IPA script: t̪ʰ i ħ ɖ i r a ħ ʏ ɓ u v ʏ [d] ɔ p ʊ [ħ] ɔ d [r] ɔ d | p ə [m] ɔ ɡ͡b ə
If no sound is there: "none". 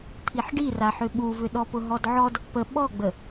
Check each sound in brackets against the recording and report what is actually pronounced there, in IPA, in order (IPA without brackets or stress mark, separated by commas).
ɗ, ɦ, ʕ, ɓ